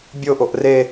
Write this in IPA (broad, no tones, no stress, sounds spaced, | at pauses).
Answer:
bʲ o ʔ o ʔ r e